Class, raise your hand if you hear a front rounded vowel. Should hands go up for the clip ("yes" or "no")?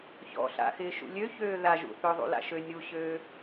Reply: yes